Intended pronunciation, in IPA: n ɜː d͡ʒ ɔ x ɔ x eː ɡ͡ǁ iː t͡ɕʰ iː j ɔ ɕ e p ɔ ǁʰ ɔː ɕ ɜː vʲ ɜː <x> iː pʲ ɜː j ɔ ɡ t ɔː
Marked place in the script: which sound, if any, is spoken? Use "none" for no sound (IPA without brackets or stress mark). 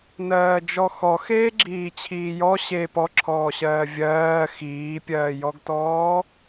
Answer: x